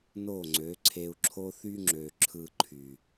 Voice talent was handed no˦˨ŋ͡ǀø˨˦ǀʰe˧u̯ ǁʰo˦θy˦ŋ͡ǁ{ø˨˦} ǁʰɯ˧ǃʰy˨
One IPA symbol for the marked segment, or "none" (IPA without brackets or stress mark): ø˨